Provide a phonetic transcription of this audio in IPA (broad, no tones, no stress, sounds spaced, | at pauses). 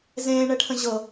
z ẽː ɳ ɛ ʈʰ ə̃ ʑ ɤ